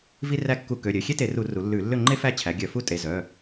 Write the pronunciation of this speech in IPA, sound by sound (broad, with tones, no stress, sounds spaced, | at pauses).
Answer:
v i˥ r æ˥˨ kː u˧˩˧ k ø˩˧˩ ɾʲ ø˩˧˩ xʲ e˥ t e˧˩˧ r u˧˩˧ r u˩˧ lː ʉ˧˩˧ lː ø˥˨ ŋ͡ǃ e˥ f æ˥˨ t͡ɕʰ æ˩˧ ɡʲ œ˧˩˧ f u˥˨ tʼ e˩˧˩ z œ˩˧˩